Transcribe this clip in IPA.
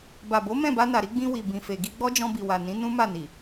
ba˨bo˨˦ mɛ̃˦˨ba˧na˨ɾi˨˦ ɡ͡bĩ˧ wi˨ bĩ˨fe˨ ɡi˧ɡ͡bɔ˦d͡ʒɔ̃˧ bi˨wa˨ nĩ˨˦ nũ˦ma˦˨ni˨

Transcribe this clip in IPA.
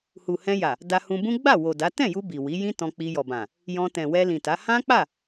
hu˨hɛ̃˧ja˨ | da˧hũ˧bũ˦ ɡ͡ba˦˨ wo˨da˨˦ tɛ̃˦˨ju˧ bi˨ wi˨˦jĩ˦ tɔ̃˧k͡pi˧jɔ˨bã˨ | jɔ̃˧tɛ̃˨wɛ˧ lĩ˨ta˨˦ hã˦k͡pa˦˨

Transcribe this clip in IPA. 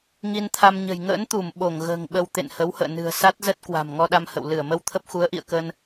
ŋi˧nt̪ʰa˧mɲə̤˨˩j ŋə̰ː˧˥nt̪u˧˩m ɓo˧˩ŋɣə̤ː˨˩ŋɓə˧w t̪ḛ˧˨nhə˨˦whə̰ː˧˨nɨ̤˨˩ə̯ sa˦˥t̚zə˦˥t̚ kwa̤˨˩mŋɔ˧ɗa˧mhə̰˧˨w lɨ˧˩ə̯mə˧w t̪ʰə˦˥p̚xu˨˦ə̯ʔḭ˧˨ə̯kəː˧n

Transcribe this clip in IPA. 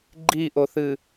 ɡ͡ǃiʔoθɨ

